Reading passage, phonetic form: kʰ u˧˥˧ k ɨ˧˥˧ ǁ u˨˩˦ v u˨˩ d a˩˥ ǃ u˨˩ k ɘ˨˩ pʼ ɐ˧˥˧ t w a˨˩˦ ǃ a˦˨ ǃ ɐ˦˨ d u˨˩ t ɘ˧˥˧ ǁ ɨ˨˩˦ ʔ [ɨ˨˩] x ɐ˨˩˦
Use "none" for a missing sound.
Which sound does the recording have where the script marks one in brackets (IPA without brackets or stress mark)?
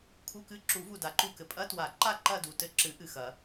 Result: ɨ˨˩